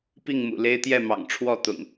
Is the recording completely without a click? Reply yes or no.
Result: yes